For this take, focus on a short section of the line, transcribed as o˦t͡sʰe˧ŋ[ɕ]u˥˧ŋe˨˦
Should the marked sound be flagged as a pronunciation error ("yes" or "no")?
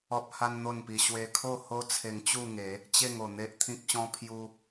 yes